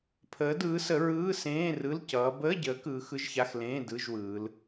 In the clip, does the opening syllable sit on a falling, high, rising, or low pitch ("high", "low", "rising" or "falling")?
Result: rising